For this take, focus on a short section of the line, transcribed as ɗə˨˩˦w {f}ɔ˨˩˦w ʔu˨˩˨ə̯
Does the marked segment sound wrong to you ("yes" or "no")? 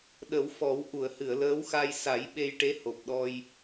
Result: no